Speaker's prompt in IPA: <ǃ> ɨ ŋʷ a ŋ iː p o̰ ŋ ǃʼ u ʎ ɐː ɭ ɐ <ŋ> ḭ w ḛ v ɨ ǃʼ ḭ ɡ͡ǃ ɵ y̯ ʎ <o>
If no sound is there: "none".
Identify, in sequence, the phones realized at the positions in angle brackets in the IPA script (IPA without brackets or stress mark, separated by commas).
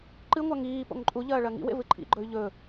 ǃ, ŋ, ɵ